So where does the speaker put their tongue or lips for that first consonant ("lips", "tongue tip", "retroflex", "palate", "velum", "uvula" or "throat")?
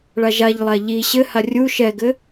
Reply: retroflex